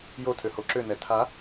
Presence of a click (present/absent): present